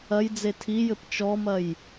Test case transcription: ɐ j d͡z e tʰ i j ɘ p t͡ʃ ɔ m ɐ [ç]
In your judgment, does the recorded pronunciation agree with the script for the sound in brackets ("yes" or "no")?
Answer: no